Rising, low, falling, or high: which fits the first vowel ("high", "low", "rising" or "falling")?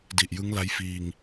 low